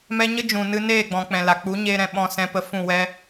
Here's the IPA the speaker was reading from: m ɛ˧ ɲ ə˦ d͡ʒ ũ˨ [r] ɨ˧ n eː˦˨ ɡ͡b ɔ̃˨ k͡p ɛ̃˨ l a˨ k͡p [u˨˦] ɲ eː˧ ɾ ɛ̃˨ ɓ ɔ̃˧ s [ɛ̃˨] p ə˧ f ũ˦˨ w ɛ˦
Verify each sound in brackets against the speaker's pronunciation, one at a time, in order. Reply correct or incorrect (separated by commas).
incorrect, correct, incorrect